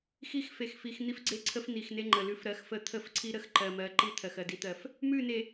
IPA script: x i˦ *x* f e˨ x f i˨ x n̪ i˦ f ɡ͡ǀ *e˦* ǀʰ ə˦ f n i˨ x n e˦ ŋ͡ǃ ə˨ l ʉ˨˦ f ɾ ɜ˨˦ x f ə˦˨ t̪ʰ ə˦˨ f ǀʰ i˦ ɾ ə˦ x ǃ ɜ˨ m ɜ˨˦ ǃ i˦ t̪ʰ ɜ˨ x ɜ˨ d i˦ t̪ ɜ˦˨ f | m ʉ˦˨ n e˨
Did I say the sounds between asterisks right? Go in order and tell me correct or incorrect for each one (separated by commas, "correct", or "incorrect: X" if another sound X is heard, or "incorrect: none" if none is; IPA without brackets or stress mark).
correct, correct